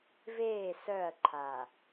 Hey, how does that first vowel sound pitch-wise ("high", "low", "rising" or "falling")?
falling